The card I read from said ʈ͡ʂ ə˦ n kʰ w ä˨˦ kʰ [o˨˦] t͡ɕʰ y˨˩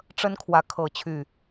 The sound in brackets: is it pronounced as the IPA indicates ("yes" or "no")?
no